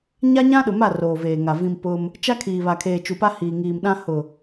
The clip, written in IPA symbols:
ɲa˦ɲã˦ɗʊ˨ma˦˨ roː˨veː˨ŋa˨ vĩ˨m pʊ˦m | t͡ʃa˦kʰiː˨ βa˨kʰeː˨ t͡ʃu˨pa˦hiː˨ ŋiː˨mɗã˦ hʊ˨

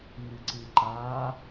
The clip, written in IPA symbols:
ŋɨǀɨǃa

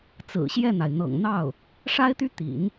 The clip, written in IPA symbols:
t͡sɹ̩˨˩ɕjɛ˥˩n̪a˩ɪ̯ n̪ɤ̰˨˩ŋn̪ɑ˥˩ʊ̯ | ʂa˥ɪ̯t̪y˥ t̪ḭ˨˩˦n

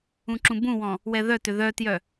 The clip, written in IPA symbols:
ũǁũbũwɔ̃ | wɛðœtʏ ðœtjœ

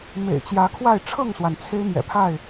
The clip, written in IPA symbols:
mḛ˨˩ɪ̯t͡ɕjä˨˦kʰwa˥˨ɪ̯ ʈ͡ʂʰɤ˥˨ŋswa˩n t͡sʰe˦ɪ̯mjɛ̰˨˩pʰa˥˨ɪ̯

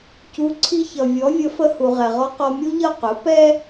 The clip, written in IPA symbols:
cu˩˥ ǀʰi˧çʌ˩ vʲɔ˩˥vʲə˩˥fə˧hu˩ ʁɛ˩ʁɔ˧ qɔ˧mʲu˥ʎʌ˥˩ qʊ˩˥pɛ˥

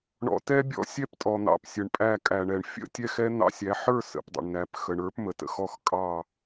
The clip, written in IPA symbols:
ɳɔ̰˨˦tɛ˦˥bʲɔ̰˦˥ sʲɛ˥˧ptʼɔ˩n̪ɑ̰˩p sʲə˩ɳpʼæ˧˩ kʼæ˩ɳɛ˩ɳfʲə̰˥˧ tʲɛ˦˥xɛ˦˥n̪ɑ̰˦˥sʲæ˨˦ ħə˞˥˧sə̰˩pdˤə̰˩ɳnæ˩p xə˩ɳə˞˨˦pmə˩tə̰˥˧x ɔ˧˩x kʼɑ˧˩

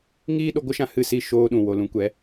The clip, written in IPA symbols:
ŋiː˦ɗo˧ɡʷə˦ʃã˧ hɨ˦˨si˦˨ʃoː˧ɗũ˨ wo˨lũ˨˦kʷɛ˨˦

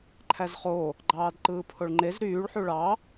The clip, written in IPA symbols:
ǃʰæzχo | ɡ͡ǃɑːdǃɯːpʰoɭŋ͡ǃez ɾyːɭ ħuɭɑ

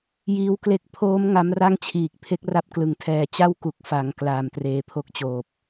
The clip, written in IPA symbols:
jiː˧wkle˦˥k̚ pʰoː˦˥m ŋa˦˥mra˥˩ŋt͡ɕʰiː˨˩k̚ pʰe˦˥k̚ra˥˩p̚ klɯ˨˩ŋtʰɛː˧ t͡ɕa˥˩wku˨˩k̚fa˩˦ŋ klaː˨˩mtreː˧pʰo˥˩k̚t͡ɕoː˨˩p̚

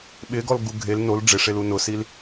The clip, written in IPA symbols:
ɓɪɡɔl ɡuɡʱel nol ɖ͡ʐɪʂelu nʊsil

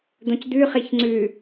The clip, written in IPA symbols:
d̪õcd̪ʉ χiçŋ͡ǀʉ

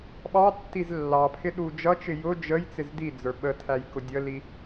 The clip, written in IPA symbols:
ɓɑtːiz lːɑpʰɪ ɗud͡ʒʌt͡ʃɪ jʊ d͡ʒəj t͡sɪzdid͡zə˞ ɓətʰæj kʊdʲəli

